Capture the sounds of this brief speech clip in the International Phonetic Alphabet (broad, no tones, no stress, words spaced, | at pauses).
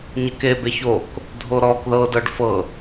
ɲəke beçok | dʱoɾɔk ðɤ dɤɖfɤ